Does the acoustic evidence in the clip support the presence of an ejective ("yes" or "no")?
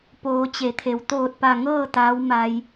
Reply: no